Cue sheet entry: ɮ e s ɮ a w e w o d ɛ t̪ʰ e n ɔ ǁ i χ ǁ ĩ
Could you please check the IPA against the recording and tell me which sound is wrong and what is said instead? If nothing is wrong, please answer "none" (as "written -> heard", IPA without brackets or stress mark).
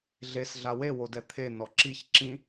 χ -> ç